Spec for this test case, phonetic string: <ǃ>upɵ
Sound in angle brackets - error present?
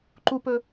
no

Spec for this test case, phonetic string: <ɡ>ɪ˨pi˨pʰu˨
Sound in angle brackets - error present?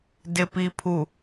yes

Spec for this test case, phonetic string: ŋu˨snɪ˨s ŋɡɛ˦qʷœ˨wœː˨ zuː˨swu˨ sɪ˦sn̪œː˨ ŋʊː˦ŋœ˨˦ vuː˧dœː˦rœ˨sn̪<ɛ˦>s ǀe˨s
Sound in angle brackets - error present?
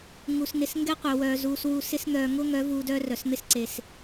yes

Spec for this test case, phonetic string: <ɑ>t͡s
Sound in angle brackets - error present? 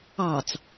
no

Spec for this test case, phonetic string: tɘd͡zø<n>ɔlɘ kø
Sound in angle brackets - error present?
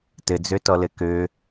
yes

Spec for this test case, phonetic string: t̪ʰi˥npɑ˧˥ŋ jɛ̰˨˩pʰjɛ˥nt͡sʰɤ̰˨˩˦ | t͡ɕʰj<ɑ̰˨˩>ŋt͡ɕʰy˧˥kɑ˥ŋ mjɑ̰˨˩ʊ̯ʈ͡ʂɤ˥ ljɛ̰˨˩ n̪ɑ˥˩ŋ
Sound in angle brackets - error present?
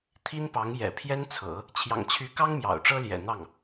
no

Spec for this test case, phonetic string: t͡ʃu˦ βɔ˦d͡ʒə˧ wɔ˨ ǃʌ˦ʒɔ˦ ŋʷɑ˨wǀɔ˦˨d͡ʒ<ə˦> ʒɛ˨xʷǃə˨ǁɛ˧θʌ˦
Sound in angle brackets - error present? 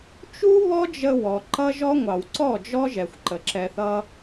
yes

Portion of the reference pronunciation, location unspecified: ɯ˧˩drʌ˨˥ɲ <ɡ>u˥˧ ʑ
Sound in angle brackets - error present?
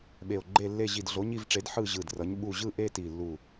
yes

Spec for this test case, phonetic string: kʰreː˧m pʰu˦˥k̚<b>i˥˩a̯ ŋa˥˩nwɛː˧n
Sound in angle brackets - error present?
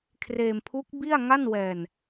no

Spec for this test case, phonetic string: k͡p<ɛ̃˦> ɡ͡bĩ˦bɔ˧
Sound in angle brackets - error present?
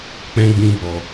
no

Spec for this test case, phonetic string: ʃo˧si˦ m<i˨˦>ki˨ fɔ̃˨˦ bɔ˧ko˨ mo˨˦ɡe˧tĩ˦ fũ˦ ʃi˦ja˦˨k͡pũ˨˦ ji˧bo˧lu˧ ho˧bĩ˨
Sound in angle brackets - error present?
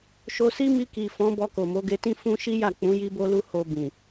yes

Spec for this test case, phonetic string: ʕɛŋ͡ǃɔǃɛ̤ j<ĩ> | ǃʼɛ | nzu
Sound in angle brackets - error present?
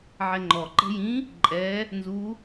no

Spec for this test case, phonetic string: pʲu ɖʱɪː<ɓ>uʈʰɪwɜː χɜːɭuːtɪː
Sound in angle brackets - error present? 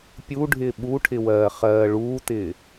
no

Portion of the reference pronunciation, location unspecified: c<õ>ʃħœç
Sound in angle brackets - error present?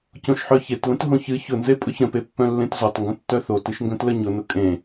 no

